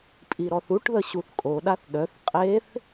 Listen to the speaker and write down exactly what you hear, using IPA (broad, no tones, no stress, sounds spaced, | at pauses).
pʼ i ɾ ɔ θ u ʈ ð ə ɕ u θ kʼ o ɗ a θ ɗ œ θ qʼ e θ